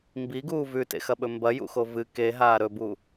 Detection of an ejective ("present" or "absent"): absent